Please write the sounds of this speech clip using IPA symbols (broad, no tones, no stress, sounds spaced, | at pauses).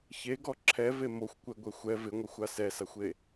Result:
ç e ɡ ɔ ǁʰ ɛ v e m o xʷ kʷ ɛ ɡʷ ɛ xʷ ɛ v ɪ ŋʷ ɛ xʷ a s ɛ s a xʷ e